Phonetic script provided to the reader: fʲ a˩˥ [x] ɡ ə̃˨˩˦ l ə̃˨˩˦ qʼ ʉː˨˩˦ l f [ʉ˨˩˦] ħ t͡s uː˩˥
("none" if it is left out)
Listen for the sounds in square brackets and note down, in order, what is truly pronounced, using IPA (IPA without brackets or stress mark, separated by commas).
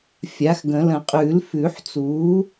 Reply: x, ʉ˨˩˦